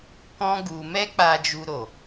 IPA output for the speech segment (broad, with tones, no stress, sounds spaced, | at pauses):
k ɔ̃˦ ɡ u˧ m ɛ˦ k͡p a˧ d͡ʒ u˧ ɾ o˨